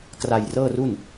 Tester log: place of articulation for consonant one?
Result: velar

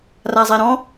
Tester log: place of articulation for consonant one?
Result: alveolar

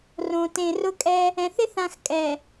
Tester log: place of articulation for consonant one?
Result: alveolar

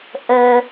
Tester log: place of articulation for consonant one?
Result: glottal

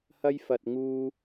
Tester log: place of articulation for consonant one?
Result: glottal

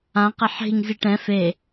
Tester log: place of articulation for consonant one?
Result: uvular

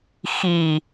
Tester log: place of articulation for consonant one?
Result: velar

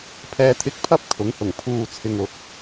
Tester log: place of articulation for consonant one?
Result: labial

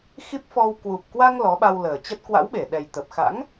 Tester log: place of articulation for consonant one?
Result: velar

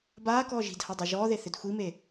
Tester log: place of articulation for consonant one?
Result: labial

